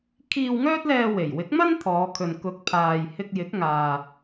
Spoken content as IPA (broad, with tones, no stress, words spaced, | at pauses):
kʰiː˧wŋœː˥t̚lɛː˧ we˨˩jwɪ˨˥k̚mɐ˥n t̪ʰɔː˨˧kʰɵ˨n kʊ˨˥k̚ pʰaː˨jhɪ˧k̚ jɪ˨˥k̚ŋaː˨